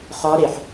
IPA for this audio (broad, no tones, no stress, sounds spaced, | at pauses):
χ ɒ ɾ e ħ